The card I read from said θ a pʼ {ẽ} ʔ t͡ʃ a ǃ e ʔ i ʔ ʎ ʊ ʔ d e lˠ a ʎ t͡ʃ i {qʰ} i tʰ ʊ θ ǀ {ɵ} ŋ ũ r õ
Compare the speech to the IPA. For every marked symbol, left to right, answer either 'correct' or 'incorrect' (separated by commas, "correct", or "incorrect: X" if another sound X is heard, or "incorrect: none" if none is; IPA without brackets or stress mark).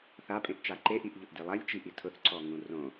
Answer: correct, incorrect: ʔ, incorrect: ɔ